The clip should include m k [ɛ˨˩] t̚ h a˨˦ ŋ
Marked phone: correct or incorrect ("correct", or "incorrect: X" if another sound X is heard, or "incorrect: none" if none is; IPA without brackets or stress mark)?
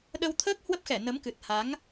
incorrect: ɨ˨˩